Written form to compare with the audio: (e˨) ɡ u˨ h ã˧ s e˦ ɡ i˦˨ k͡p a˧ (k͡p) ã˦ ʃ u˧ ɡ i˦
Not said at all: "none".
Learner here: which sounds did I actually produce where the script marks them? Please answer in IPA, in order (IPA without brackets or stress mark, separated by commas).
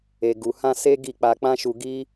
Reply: e˨, k͡p